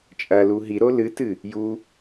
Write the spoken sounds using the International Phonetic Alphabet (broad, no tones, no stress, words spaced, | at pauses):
t͡ʃʼɐlu ɦiɾo lɨtɨ | ju